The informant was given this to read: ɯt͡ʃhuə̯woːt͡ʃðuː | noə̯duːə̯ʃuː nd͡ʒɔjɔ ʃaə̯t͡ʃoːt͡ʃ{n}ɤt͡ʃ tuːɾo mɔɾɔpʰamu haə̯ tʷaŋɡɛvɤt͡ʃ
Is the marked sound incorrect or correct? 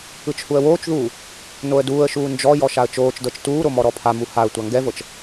incorrect